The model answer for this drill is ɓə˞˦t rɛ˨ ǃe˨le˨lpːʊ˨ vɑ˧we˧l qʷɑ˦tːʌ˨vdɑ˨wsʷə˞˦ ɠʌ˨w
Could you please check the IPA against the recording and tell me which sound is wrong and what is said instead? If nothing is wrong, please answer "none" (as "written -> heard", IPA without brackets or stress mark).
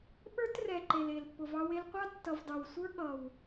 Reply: none